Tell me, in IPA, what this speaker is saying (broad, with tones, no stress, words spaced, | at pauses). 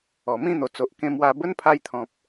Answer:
ɔ˨˩mĩ˥˧n̪o˨˩ t͡so˨ʔkẽ˧ mwa˧ bə˦npʰa˧jt̪ʰɔ̃˨p̚